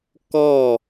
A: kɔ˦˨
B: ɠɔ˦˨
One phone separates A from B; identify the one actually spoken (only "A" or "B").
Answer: A